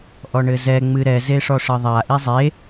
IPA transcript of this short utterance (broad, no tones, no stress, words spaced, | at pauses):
ʔɔɳɘzɛ ŋ͡mɨɾɛ zeʂɔʂɘðˤa ʔizˤe